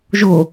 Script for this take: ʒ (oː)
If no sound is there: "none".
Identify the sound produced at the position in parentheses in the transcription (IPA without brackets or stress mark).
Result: o